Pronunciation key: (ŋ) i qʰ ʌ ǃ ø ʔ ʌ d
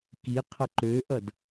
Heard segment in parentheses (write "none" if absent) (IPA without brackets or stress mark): k